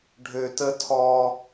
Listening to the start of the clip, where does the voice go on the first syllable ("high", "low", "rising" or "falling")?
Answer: high